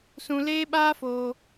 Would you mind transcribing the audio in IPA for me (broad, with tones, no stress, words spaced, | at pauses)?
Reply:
sũ˧leː˦ɓaː˦foː˧